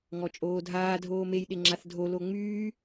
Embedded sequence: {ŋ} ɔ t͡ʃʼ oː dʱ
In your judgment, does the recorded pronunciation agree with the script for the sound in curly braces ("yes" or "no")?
yes